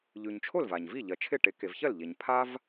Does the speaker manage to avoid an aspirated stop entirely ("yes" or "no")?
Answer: no